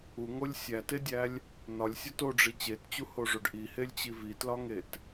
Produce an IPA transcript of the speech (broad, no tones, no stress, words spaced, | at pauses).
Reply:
uŋolʲ sʲætedʲælʲ | nɒlʲsʲɒt oɖ͡ʐi t͡ɕett͡ɕuhoʐoɖ ʔihelʲt͡ɕi vitlɒŋet